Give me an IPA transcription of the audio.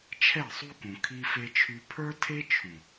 t͡ʃʰ ɛ˦˨ sˤ u˦ k ũ˨ kʰ i˦ f e˦ t͡ʃʰ y˦ pʰ ə˞˦ tʰ e˦ t͡ʃʰ ũ˨

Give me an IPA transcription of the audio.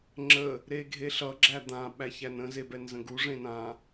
ŋ͡ǁ ə | ɾ e ɡʱ e ɬ ʌ ɡ͡ǁ æ d̪ ã ɓ æ ç æ n ə̃ z e b ɛ n z ə̃ ɡ u ʐ ẽ n ã

